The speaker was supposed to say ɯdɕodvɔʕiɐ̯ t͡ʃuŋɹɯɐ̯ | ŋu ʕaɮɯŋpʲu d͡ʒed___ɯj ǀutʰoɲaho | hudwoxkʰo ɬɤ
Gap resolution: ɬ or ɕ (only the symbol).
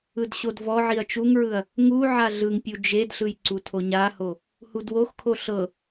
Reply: ɬ